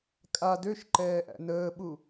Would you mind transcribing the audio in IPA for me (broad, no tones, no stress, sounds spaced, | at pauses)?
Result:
kʼ a d ø ʃ ǃ ɛː ʔ æ̰ n əː ɓ u